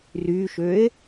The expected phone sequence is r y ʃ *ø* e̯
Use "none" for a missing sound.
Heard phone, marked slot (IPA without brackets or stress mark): ø